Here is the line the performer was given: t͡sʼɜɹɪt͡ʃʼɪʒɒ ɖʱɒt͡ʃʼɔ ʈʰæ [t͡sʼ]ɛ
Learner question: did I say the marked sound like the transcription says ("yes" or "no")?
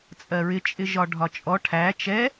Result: no